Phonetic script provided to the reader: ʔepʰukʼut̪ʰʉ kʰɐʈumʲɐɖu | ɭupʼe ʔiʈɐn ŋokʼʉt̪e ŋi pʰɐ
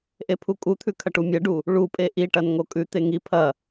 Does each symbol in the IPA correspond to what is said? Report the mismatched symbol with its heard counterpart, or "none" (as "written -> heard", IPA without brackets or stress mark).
none